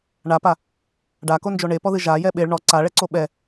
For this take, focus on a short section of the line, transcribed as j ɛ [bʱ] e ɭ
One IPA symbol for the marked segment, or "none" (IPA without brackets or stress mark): ɓ